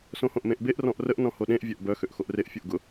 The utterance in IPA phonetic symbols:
s õ h õ ʔ m ẽ ʔ b e ʔ r ɔ̃ ʔ r ə ʔ n ɔ̃ h o ɗ ẽ ʔ vʲ œ ʔ b œ x ø ʔ x o ʔ r e ʔ fʲ o ʔ ɡ ʊ

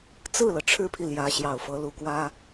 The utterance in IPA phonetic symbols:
t͡s ɹ̩˥˩ l ɤ˩ ʈ͡ʂʰ ɻ̩˥ pʰ i˨ l j ä˧˥ ɕ j ɑ˨˩ ʊ̯ f ɤ˧˥ l u˨˩ k w ä˥

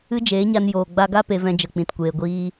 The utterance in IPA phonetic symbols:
ɨ˦ d͡ʒ eː˨˦ ɲ a˧ n j oː˨ ɡ͡b a˧ ɡ a˦ p e˧ v ɛ̃˧ d͡ʒ ə˨ k͡p ĩ˨ t kʷ eː˨ ɡʷ iː˧

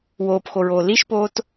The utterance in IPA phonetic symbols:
w oː p x o ɹ oː l i ʃ p oː t

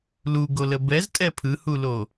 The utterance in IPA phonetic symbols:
l u ɡ o l ə b ɛ z tʼ ɛ pʰ ɯ h u l o

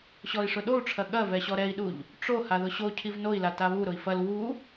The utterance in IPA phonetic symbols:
ɕ ɔ i̯ ʂ ʊ ɗ o u̯ ʈ͡ʂʰ ɐ ɠ ɐ v ɛ ɕ ɔ ɾ ɛ i̯ ɗ u ʎ | ʈ͡ʂ o h a ð ʊ ɕ o cʰ i v n o i̯ l a t a β u ɾ ʊ i̯ f ɐ l w u

